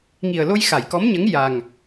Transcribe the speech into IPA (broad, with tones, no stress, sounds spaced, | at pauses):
ŋ i˨˩ ə̯ l o˧ j x a˨˩˨ j k ɔ˧˥ m ɲ ə˧˥ ŋ j a˨˩ ŋ